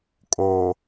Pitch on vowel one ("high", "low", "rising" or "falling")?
low